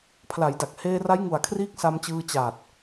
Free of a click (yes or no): yes